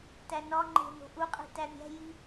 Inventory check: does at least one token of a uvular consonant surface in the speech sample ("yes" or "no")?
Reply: yes